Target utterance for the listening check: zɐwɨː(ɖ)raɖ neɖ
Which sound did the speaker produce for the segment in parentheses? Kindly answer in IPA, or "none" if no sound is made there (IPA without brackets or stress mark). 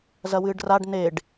ɖ